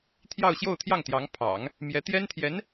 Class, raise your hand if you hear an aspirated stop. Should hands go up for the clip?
yes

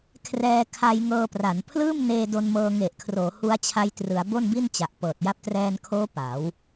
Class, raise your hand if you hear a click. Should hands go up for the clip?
no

